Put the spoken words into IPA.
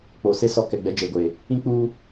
k͡p o˨ s e˦ s ɔ˦ k ɛ˨ ɡ͡b ɛ˦ d͡ʒ eː˨ ɡʷ eː˨ | ĩ˦ k͡p uː˦

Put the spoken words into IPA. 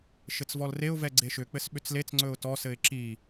ʃ ɘ t͡s v ɔ l r e ʊ̯ v ɛ ɡ͡ǀ e ʃ ʏ k͡p ɘ s ɓ ʏ t͡s l e t͡s ŋ͡ǀ ɵ ʊ̯ t ɔ s ɘ ɪ̯ ǁ i

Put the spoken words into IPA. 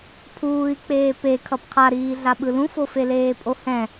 pʰ uː i̯ k͡p eː p e kʰ ʌ p qʰ a ɾ iː ɮ a ɓ ɯ l ũ f o f e l eː pʼ o h ɛ̃

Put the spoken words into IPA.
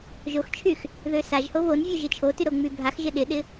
ʒ o x t͡ʃʰ y x | ð ø s a ʒ h o β o n vʲ ø ʒ ɪ t͡ʃʰ o t y ɾ o ŋ͡m y bʱ a x ʒ ɪ ɗ ɪ ɗ ɪ

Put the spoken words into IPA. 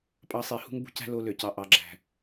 pʼ ɑ˦˨ sˤ i˧˩˧ h ṳ˧˥ ŋ b ṳ˩˥ c æ̤˧˥ l o˧˥ l ø˨˩ c ɑ˧˥ ʔ ɑ˩˥ ɡ͡ǁ æ̤˨˩

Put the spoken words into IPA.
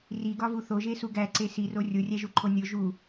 r i ɡ ɒ v u θ o ʒ e s u ɡ æ ǀ e s i r o rʲ o rʲ æ ʒ u ǃʰ o nʲ o ʒ u

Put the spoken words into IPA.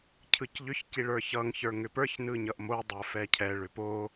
cʰ ɯ c ʎ ʏ ç c i ɭ ə˞ ç ʌ ŋ ç ə˞ ŋ ʏ p ə˞ ç n ɯ ɲ ʌ ʔ m o dˤ ə˞ f ɛ cʰ ɛ ɭ ʏ p o

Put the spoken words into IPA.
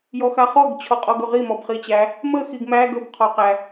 j ɔ x a χ ɔ ɡ t͡ɕʰ ɔ qʼ ɔ ɡ ɵ ʁ i m ɔ b χ i t͡ɕ æ | m ə x i ɡ m æ ɡ ɵ b qʰ ɔ q æ

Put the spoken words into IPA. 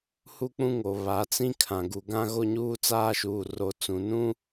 h u˦ k͡p ũ˦ ŋ o˨ β a˨˦ t͡s ĩ˦ kʰ ã˨ ɡ u˨ ɡ ã˦ ɣ o˦ ɲ uː˦ t͡s aː˦ ʃ uː˨ r o˨˦ t͡s ũ˨ n ũ˦

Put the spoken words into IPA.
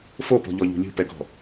f o p ɔ̤ ʎ ɔ ʎ ṳ lʲ ṳ p ɛ ɡ ɔ̤

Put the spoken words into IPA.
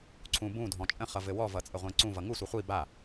ǀʰ ũ b ũ dʱ ɔ̃ t͡ʃʼ ə̃ χ ʌ v ɘ w ɔ v ʌ t͡sʼ ə ʁʷ ẽ ǀ ũ v ʌ ŋ u sʷ ɘ χʷ i b a

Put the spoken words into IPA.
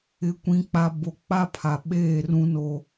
ɪ˨˦ kʷ ĩ˨ k͡p a˨ b o˨˦ k͡p a˦ pʰ a˨ ɓ eː˦˨ r ũ˦ n o˦

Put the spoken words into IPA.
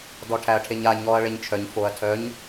d ɔ ʈʰ æ ɐ̯ ʈʰ e ɲ a ɲ ɔ ɐ̯ ɭ e ɲ t͡ʃʰ œ ɲ f o ɐ̯ tʰ œ ɲ

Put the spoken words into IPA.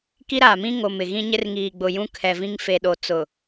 k i˦ ɾ aː˨ m ĩ˦ ŋ o˨ m ɪ˨ ɣ ĩ˦ ɲ ɪ˦ r ŋ iː˨ ɡ͡b ʊ˨ j ũ˦ kʰ ɛ˨ v ĩ˦ ŋ f e˨ ɗ o˨ t͡s ʊ˨

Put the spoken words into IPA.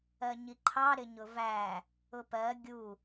ɜ ɲ i ǃʰ ɑ ɾ ɪ ɲ ʊ v æ | ʊ p ɜ ɡʲ u

